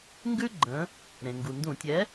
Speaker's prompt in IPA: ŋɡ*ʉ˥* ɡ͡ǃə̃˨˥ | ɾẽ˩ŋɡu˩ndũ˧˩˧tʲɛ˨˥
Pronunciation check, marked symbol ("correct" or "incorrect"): correct